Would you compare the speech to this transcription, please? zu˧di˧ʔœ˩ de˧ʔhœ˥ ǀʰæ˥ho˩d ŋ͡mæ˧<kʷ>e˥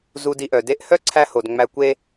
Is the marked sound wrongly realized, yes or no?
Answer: no